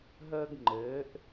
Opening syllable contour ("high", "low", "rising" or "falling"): high